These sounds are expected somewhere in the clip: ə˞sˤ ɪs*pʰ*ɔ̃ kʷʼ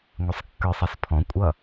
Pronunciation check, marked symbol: correct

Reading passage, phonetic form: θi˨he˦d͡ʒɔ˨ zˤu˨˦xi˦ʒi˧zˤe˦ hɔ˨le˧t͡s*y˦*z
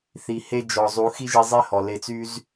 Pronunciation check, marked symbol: correct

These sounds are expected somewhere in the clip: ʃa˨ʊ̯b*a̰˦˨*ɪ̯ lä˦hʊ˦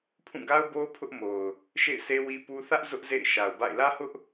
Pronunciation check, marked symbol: correct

